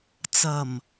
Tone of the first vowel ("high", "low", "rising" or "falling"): low